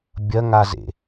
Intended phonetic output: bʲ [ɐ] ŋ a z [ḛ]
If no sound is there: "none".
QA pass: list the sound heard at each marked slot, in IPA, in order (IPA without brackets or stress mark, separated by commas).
ɐ, ḛ